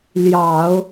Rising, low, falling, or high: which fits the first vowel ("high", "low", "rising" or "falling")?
low